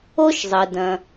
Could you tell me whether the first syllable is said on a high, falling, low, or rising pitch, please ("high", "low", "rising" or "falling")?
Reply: high